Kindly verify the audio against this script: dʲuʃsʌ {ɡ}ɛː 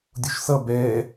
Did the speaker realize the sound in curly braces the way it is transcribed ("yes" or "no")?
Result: no